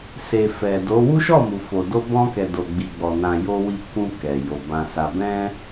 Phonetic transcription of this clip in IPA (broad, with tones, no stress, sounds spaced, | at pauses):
s e˨ f ɛ˨ d o˨˦ w u˦ ʃ ɔ˦˨ m u˨ f o˨ d o˧ b ɔ̃˧ k ɛ˨ d o˨ ɡ͡b i˨ ɡ͡b ɔ˨ n ã˨ j o˧ w i˧ k ũ˧ k ɛ˨ j o˨ b ã˧ s a˨ b ɛ̃˧